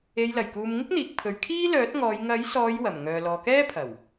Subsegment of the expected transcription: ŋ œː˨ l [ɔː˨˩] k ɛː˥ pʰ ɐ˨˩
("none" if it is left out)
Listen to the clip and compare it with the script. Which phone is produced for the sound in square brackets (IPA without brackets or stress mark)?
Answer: ɔː˨